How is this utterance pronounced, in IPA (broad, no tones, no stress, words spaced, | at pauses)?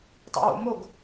tˤɛ̰wo̰moɡ